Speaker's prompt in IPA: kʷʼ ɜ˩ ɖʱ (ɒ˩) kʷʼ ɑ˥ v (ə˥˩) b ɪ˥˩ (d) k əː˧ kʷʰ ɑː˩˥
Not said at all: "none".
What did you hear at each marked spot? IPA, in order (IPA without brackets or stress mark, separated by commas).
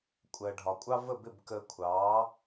ɒ˩, ə˥˩, b